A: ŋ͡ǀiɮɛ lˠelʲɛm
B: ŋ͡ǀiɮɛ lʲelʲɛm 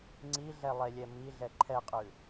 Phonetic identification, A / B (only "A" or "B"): A